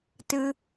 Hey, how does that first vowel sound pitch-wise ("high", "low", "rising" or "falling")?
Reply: high